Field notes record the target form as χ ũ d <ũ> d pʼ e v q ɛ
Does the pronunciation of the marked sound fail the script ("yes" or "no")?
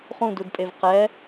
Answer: yes